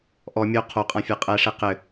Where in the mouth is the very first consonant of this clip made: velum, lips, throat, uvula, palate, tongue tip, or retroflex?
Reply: throat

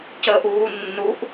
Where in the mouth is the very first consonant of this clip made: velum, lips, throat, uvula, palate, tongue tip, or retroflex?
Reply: palate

